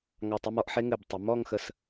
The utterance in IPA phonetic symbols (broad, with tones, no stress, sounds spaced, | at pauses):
ŋ ɑ˧˩ tˤ ɵ˥˧ m ɔ˥˧ ʔ ħ e˥ ŋ ɘ˧˩ b tˤ ɘ˩˧ m ɔ˥˧ ŋ x ə˧ s